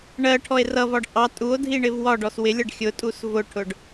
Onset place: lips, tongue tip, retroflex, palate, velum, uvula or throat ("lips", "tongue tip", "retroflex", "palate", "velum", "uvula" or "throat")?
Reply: retroflex